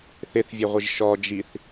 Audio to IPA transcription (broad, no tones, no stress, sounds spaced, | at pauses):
θ ɪ θ vʲ e ʁʷ ɪ ʒ ʃ ɔ d͡ʒ i θ